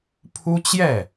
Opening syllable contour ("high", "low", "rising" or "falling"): high